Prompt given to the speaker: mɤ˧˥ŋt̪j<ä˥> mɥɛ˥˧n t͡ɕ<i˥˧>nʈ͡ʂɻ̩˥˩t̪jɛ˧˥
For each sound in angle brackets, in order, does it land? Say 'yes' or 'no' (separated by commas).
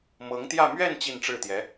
no, yes